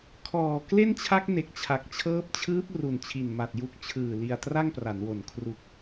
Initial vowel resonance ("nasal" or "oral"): oral